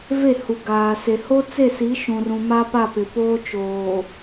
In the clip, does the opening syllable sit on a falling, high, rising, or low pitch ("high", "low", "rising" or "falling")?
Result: falling